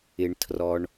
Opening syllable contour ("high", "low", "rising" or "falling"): low